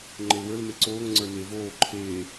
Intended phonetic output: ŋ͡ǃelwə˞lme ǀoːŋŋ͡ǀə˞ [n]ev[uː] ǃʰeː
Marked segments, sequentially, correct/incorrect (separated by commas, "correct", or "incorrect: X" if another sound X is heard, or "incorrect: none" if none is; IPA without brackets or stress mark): correct, incorrect: oː